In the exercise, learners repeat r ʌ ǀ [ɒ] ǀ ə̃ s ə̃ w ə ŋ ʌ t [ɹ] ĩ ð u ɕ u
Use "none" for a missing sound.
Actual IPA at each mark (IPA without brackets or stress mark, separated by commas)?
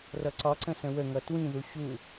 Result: ɒ, w